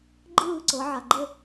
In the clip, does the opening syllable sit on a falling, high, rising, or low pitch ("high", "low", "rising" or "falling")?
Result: falling